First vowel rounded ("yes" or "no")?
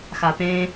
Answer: no